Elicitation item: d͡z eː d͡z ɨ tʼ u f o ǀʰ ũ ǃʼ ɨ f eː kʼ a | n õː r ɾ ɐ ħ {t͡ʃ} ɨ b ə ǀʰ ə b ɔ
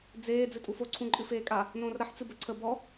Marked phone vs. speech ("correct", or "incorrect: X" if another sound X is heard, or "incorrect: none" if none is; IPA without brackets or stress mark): incorrect: t͡s